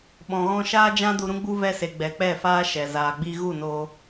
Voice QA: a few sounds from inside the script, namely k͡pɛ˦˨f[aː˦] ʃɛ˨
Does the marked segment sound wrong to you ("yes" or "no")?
no